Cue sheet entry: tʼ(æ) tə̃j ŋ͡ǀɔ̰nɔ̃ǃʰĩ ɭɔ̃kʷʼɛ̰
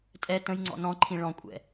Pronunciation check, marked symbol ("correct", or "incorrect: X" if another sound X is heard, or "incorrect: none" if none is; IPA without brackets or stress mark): incorrect: ɛ